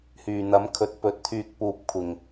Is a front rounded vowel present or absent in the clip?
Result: present